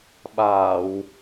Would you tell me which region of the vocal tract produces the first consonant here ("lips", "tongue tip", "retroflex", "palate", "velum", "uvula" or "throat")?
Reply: lips